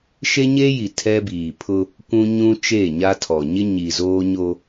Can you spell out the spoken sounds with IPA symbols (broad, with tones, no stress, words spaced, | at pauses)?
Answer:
ʃe˦ɲe˦ji˨ tʰɛ˦biː˨pʰʊ˦ | kʷũ˦ɲũ˦ t͡ʃe˦˨ɲa˦tʰɔ˨ ɲɪ˦ɲi˨ zoː˦ɲo˦